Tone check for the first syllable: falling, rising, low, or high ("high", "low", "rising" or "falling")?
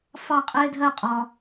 falling